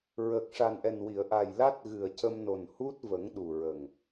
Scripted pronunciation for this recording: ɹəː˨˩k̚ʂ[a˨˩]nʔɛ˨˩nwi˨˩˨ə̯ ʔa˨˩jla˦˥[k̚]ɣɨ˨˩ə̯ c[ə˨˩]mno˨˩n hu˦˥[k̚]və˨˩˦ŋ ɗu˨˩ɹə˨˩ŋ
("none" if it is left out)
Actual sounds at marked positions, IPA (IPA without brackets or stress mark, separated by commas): a˨˩, t̚, ə˧, t̚